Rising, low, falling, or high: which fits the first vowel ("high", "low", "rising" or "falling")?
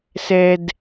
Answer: low